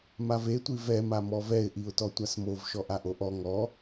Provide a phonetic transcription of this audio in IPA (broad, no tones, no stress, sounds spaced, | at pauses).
m a v e tʷ i v ɛ m a m ɔ v ɛ ɪ̯ ʔ i ʊ̯ t ɔ tʷ a s m o v ʃ ɔ ʔ a ʔ o ʔ ɔ ŋ ɔ